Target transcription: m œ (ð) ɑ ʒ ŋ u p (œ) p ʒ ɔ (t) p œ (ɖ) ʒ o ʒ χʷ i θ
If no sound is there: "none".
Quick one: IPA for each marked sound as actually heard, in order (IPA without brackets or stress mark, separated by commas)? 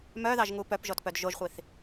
ð, œ, t, d